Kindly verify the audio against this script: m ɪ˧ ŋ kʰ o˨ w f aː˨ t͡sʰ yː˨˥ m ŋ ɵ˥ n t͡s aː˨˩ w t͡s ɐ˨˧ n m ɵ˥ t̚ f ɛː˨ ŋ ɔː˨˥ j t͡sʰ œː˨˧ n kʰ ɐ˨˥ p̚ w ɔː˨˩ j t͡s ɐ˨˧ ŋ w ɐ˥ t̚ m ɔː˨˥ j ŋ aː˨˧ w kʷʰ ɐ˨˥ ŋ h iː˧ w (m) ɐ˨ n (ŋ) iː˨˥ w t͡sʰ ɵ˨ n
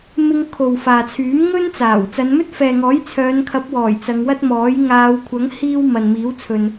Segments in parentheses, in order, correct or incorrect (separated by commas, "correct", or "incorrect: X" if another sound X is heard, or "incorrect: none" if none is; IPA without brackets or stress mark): correct, incorrect: m